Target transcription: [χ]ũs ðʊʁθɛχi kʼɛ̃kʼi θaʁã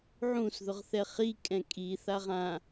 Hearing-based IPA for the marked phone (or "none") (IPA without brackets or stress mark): ʕ